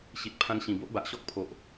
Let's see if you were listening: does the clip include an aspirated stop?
yes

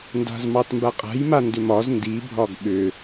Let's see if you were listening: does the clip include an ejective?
yes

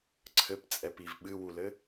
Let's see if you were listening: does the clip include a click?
yes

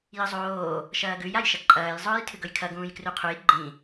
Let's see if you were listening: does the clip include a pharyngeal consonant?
no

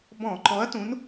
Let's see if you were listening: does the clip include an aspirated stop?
no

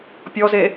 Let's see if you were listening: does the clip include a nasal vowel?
no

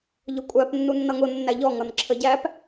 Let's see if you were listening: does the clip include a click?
yes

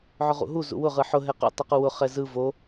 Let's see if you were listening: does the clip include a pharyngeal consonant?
yes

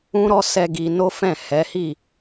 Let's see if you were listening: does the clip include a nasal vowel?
yes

